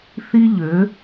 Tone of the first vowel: high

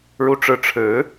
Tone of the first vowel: falling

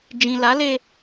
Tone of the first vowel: low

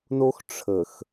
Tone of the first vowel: high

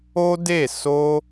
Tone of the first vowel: high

